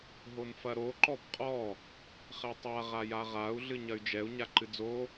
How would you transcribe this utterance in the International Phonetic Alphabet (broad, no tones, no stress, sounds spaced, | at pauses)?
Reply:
ɦ o n f ɐ ɾ o ǃ ɔ b qʼ ɔ | χ ɛ tˤ a ʁ a j a ʁ a u̯ ɮ ɨ ɲ ɐ y̯ d͡ʒ ɛ u̯ ɲ a ǃ ɨ d͡z o